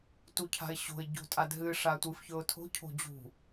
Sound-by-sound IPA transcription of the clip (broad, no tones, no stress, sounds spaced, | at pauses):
t u cʰ a̤ ɪ̯ ɕ o̤ ɪ̯ ɟ o̤ tʼ a d ɦ ɨ ʂ a tʷ ɨ f ç ɵ ʊ̯ tʰ o̤ cʰ o̤ d͡ʑ ṳ